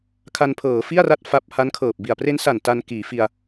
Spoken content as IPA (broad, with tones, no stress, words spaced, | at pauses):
kʰa˧npʰɤː˩˦ fi˥˩a̯ra˦˥t̚ fa˦˥p̚ ha˦˥nkʰɤː˨˩p̚bi˨˩a̯ pre˦˥nsa˨˩n ta˧n kiː˩˦fi˧a̯